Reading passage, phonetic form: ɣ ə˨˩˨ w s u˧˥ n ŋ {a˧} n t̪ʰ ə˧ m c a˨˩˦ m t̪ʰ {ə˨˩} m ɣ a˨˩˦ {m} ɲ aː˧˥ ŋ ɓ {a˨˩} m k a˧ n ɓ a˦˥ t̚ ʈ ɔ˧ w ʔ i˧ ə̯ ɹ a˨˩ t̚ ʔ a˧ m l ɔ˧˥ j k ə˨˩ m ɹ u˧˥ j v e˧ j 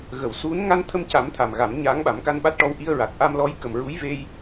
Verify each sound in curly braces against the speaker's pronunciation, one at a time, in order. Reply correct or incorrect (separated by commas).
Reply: correct, incorrect, correct, incorrect